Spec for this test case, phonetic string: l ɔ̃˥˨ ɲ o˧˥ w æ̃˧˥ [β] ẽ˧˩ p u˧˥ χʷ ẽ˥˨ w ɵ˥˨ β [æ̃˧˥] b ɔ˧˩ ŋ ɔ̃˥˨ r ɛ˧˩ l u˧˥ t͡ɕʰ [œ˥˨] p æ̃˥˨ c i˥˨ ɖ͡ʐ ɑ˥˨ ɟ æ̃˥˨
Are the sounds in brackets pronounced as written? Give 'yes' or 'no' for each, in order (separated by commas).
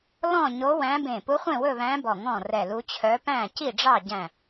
no, yes, no